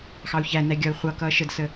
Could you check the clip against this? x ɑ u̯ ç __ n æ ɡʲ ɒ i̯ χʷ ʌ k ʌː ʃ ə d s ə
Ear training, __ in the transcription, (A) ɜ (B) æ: B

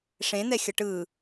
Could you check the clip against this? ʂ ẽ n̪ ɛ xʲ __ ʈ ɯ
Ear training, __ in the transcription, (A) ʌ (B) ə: A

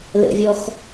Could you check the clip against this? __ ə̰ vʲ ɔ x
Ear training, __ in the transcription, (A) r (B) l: B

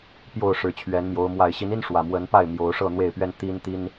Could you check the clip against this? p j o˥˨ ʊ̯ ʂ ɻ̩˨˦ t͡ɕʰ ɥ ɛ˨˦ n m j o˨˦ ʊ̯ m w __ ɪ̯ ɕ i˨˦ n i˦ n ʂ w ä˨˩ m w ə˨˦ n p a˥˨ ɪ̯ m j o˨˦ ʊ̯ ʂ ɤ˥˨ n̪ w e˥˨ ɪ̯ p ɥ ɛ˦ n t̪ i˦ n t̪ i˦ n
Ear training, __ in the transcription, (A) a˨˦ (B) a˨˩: B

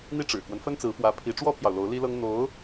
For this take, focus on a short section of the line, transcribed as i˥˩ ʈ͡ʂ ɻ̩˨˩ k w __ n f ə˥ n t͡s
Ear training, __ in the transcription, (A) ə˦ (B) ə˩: A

